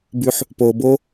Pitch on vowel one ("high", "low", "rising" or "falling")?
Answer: low